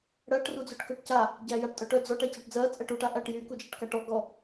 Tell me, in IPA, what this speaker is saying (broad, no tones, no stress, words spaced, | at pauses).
ɽɜʈ rud͡zyʈkœʈca | ɟæjaʈtʼœʈœ d͡zɔʈ æcaʈd͡zɜ t͡sʼɛʈuʈ aʔæʈjy kud͡ʒæʈkaʈɔ ɡɔ